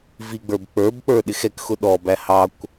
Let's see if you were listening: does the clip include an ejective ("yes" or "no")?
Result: no